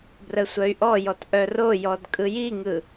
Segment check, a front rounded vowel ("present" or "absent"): present